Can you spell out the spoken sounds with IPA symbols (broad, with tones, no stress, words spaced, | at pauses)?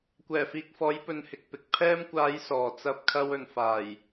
kʷɛː˨˩fiː˨k̚fɔː˨˧j pɵ˧nhɪ˧k̚pɪ˧k̚ pʰɛː˧mkʷaː˨˧j sɔː˨ t͡sɐ˧p̚kʰɐ˧wɵ˨nfaː˨˩j